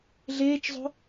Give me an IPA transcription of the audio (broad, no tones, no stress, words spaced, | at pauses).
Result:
ɮeːt͡ʃzˤo̤